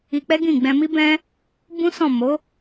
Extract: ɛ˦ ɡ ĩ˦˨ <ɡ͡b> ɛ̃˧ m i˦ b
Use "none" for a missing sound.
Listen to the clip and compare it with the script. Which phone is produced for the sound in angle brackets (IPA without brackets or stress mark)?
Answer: ɡ͡b